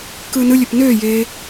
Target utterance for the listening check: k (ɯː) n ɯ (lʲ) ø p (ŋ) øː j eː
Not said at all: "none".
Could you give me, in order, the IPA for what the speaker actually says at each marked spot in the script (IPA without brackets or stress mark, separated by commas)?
ɯː, lʲ, n